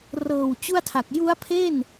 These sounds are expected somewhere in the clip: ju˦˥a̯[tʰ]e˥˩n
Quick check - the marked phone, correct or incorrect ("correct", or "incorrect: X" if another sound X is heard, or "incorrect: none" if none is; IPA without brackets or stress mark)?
incorrect: pʰ